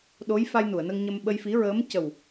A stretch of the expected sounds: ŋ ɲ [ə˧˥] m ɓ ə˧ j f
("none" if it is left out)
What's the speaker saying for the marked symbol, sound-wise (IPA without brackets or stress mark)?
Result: ə˧